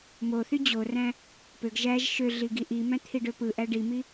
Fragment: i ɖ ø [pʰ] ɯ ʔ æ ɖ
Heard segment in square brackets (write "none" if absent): p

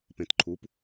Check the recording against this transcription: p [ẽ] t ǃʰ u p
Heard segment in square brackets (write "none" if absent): ẽ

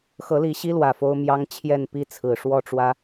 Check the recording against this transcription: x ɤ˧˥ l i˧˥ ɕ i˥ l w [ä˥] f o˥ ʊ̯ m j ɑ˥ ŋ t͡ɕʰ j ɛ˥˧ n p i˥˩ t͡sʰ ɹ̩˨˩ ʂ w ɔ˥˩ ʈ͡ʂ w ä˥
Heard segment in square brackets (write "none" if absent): ä˨˩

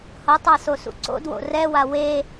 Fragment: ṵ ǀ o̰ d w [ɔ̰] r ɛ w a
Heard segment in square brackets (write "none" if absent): o̰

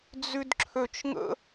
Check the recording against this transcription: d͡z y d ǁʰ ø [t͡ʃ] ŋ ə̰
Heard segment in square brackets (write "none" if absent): t͡ʃ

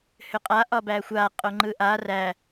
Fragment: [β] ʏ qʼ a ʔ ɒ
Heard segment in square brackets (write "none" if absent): h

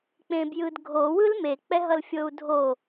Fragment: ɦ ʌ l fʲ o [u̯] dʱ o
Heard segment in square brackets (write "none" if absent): u̯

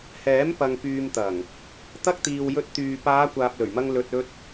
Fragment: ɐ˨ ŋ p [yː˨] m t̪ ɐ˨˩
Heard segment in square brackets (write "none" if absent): yː˨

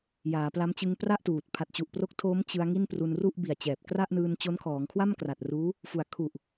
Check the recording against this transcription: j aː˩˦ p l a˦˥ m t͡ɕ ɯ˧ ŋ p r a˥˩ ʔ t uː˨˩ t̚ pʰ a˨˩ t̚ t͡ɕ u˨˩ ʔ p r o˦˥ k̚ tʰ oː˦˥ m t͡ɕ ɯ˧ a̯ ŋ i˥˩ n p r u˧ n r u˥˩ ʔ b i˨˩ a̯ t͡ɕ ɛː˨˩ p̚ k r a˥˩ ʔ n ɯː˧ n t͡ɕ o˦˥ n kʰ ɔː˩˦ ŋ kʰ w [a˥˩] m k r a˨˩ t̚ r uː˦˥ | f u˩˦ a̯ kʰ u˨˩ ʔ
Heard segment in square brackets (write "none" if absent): a˥˩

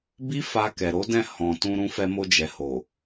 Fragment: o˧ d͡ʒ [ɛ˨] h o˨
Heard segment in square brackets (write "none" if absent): ɛ˨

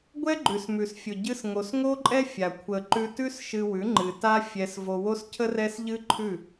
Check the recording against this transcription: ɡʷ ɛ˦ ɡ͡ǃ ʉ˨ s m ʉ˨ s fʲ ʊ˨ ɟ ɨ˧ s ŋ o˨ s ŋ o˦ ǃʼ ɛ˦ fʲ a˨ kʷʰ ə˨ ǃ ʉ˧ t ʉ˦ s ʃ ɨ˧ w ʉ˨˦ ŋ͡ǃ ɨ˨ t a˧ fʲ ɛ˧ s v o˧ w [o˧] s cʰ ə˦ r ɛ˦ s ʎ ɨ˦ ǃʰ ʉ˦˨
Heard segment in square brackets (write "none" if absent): o˦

